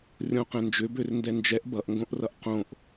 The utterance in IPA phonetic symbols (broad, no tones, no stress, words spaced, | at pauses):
rʲõqɛ̃nd͡ʒʏ børndɛnd͡ʒɛʔ bʌʔŋɡõʔrʌʔ qõʔ